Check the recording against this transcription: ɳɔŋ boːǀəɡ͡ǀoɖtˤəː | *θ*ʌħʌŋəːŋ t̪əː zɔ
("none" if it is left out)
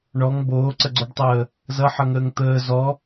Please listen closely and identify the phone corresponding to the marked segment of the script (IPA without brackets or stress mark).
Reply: z